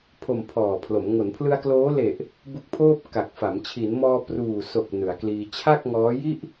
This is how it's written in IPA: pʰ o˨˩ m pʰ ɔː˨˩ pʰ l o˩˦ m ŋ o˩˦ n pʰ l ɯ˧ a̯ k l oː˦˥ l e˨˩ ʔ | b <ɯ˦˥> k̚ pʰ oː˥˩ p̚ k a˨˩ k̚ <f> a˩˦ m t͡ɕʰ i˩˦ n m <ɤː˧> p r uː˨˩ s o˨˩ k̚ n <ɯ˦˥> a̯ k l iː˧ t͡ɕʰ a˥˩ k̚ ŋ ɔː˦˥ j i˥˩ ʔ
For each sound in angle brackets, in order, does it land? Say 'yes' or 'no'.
no, yes, no, no

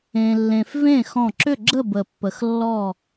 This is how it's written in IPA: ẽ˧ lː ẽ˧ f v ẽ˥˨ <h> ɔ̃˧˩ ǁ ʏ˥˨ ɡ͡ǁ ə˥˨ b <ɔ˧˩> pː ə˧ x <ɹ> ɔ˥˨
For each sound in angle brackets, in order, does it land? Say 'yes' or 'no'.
no, no, no

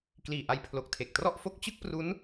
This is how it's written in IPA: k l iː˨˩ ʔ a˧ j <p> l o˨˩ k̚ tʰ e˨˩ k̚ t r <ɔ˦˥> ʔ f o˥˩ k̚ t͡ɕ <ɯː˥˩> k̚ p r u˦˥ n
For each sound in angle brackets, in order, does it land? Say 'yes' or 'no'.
no, no, no

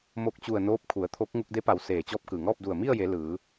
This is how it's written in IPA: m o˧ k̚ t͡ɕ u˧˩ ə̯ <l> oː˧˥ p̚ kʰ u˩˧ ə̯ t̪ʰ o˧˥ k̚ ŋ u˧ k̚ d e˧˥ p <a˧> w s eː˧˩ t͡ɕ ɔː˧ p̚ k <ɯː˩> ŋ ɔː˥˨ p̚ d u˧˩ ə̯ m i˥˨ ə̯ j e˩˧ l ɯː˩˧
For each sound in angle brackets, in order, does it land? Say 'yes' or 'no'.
no, no, yes

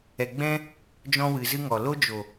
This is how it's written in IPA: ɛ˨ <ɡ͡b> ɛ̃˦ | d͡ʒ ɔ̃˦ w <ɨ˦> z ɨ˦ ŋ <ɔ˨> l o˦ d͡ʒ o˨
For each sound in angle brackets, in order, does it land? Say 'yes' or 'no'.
yes, no, yes

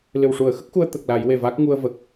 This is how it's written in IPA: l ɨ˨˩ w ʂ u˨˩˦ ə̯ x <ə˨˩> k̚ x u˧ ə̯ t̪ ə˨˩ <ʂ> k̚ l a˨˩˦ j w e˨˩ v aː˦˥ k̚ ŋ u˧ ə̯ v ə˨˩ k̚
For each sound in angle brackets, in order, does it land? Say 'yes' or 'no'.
no, no

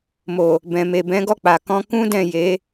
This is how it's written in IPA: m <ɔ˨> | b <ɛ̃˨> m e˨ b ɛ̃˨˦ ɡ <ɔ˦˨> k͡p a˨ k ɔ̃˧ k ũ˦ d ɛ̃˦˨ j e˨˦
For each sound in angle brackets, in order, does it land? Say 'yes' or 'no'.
no, yes, yes

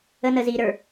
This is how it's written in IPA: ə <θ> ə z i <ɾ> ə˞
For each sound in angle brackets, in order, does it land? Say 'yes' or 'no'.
no, yes

